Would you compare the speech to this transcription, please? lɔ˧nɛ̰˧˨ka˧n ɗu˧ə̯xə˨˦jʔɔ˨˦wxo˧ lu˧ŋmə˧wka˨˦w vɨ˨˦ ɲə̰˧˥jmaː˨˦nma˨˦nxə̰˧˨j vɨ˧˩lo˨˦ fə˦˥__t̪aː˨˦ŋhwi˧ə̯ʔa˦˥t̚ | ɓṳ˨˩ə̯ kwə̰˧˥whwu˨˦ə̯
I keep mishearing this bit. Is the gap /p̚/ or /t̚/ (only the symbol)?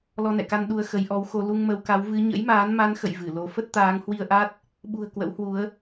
t̚